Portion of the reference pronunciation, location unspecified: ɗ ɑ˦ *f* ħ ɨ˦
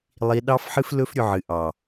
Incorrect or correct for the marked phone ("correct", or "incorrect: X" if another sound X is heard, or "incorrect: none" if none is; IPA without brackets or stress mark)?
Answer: correct